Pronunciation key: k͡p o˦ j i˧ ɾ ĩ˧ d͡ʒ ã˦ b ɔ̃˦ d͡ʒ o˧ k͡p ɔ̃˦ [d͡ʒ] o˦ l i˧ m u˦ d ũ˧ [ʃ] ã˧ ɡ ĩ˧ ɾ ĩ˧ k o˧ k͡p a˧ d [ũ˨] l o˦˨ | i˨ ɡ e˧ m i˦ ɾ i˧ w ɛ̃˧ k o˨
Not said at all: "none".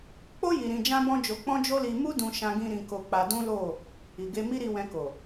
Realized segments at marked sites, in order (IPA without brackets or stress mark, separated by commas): d͡ʒ, ʃ, ũ˦